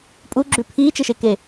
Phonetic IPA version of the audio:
pʼ u ɡ͡ǁ ʉ pʰ iː t͡ʃ e ʃ e k e

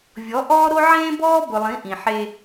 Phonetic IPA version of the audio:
vʲ ɔ˨˦ ʔ ɔː˦ ɾ o˦ ʕ ẽː˦ b ɔː˦ b ʊ˨ lˠ ĩ˨˦ ʔ ĩ˨ ħ e˦

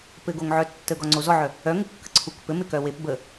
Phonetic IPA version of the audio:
p ɘ ɡ o ŋ ʕ œ tː ə ɡ ɔ ŋ͡ǀ o z ɔ ʕ œ | œ ŋ u kː ə ǀʰ u k p ɘ m ɪ k œ w e p b ə

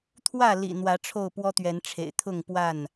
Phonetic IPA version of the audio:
t̪ʰ w ä˥˨ l ḭ˨˩ n̪ w ä˨˦ ʈ͡ʂʰ o˥˨ ʊ̯ p w ɔ˦ t̪ ɥ ɛ˨˦ n ʈ͡ʂʰ ḛ˨˩ ɪ̯ t̪ʰ ʊ˥˨ ŋ p w a˥˨ n

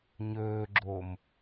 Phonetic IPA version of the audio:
ɲ ɵː ɡ͡ǁ o m

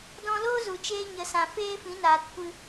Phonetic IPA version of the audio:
d ɔ̃˧ l oː˦ z u˨ t͡ʃ eː˧ ɲ ə˨˦ s ã˨ f eː˦ f ĩ˨˦ n aː˨ t kʷ ɨ˧

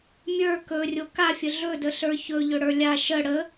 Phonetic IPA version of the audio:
mʲ ə˞ k ɵ rʲ o k a fʲ ə ɮ ɵ d ə ɬ ə˞ ç ɵ ʎ ɵ ɽ ə˞ lʲ a ʃ ə ɽ ə

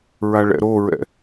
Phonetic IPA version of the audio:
ɹ a ɭ ɛ̰ ɾ o ɹ ɛ̰

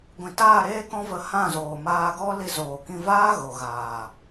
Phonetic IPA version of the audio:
ɡʷ ĩ˨ t aː˦˨ ɾ eː˦ k ɔ̃˦ v ə˧ h ã˦˨ z oː˨ m aː˧ ɡ ɔ˦ l i˧ z oː˨ k ĩ˧ v aː˦ ɣ o˨ ɣ aː˨

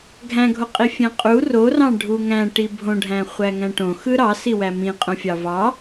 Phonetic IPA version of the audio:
ɡʱ æ̃ ɡʱ o qʼ i fʲ æ̃ qʼ u r o r ɑ̃ ɖʱ u ŋ æ̃ ʈ i bʱ õ ɖʱ æ̃ χʷ æ ŋ æ̃ ʈ õ x ɯ ɾ ɑ s i w æ m ĩ qʼ õ fʲ ɑ v ɑ

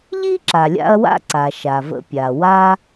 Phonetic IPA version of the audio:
ʎ i˥ ǁ a˩ lʲ a̰˧ ɐ̯ w a̰˥ ǀ a˩ ʃ a˩ v ə̰˧ pʲ a˩ w a˥

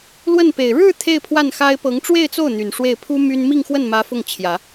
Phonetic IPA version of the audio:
l w ə˥˩ n p e˨˩ ɪ̯ ɻ ɻ̩˥˧ t̪ʰ e˥˧ ɪ̯ pʰ w a˥˩ n x a˥ ɪ̯ p ɤ˧˥ ŋ ʈ͡ʂ w e˥˧ ɪ̯ t͡s o˥˩ ʊ̯ n̪ y˨˩ n ʂ w e˥˩ ɪ̯ pʰ u˥ m y˥ n m i˥˧ ŋ x w ə˥˩ n m ä˧˥ f ʊ˥˩ ŋ t͡ɕʰ j ä˨˩˦

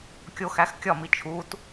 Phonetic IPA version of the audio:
kʲ o x æ x kʲ ɒ m i t͡ʃʰ u t

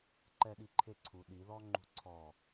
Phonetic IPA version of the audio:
ǃ ɛ ɗ i ǃʰ e ǀʰ u ɗ i ð ɔ ŋ͡ǃ ṳ ǀʰ ɔ

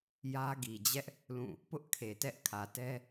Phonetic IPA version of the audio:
j ä˦ ɡ i˨ d͡ʑ ɛ˦ ʔ | l ũ˦˨ | p ʊ˦ ʔ kʰ e˨ t ɛ˦ ʔ kʰ ä˨ t ɛ˦

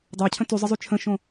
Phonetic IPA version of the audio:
dˤ ɑ cʰ ə̃ t y zˤ ə zˤ y t͡ʃʰ ə̃ ʃ õ

